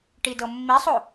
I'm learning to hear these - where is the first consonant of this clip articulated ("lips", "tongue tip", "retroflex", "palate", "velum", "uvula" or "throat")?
retroflex